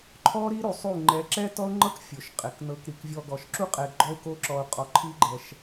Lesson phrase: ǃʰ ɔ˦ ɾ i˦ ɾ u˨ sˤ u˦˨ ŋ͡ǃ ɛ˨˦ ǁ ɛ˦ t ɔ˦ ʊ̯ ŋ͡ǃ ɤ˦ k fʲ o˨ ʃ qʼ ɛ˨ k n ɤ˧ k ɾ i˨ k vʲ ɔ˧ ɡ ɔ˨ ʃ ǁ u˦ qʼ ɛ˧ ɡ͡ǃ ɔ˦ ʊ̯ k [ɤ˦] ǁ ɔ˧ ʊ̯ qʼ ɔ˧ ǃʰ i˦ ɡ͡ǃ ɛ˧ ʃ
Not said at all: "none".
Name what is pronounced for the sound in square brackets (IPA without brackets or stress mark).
o˦